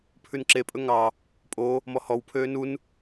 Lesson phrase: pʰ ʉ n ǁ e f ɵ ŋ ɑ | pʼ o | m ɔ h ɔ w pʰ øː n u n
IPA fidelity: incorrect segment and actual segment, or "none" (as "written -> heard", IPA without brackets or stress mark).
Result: f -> pʼ